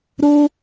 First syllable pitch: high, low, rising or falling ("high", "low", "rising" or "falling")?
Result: high